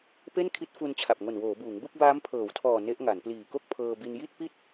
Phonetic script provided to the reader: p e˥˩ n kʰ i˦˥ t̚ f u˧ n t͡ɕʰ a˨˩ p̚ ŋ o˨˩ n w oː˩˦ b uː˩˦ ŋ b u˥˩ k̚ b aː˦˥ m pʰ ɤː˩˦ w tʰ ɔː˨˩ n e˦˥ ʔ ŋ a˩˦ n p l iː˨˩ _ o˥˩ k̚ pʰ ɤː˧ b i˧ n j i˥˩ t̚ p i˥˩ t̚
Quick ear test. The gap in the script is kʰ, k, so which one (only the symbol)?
k